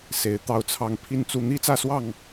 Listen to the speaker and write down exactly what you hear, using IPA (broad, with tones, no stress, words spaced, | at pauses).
se˨˦ɪ̯t̪ɑ˥˨ʊ̯t͡sʰɑ˥˨ŋ pʰi˥˨nt͡su˥˨ n̪i˦t͡sä˥˨swɑ˥˨ŋ